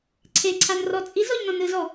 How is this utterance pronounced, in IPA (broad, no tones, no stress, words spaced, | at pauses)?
ǀʰeǀʰanrɔ t͡sʼizɔʎnɔ̃n ɯzɔ